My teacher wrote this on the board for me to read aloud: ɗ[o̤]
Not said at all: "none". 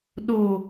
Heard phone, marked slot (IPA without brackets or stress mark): o